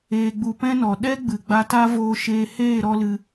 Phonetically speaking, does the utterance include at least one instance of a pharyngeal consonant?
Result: no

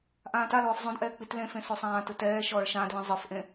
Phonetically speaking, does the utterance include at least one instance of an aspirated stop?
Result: no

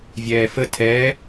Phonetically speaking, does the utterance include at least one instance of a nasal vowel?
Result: no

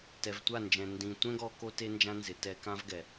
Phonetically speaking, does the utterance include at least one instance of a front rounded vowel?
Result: no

